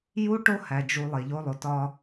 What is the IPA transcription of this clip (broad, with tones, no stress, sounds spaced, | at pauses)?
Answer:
j u˦ ʈ o˦ h æ˨ d͡ʒ u˨ lˠ e˨ ʎ o˦ lˠ o˨ t ɒ˦